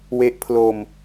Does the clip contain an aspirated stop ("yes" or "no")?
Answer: yes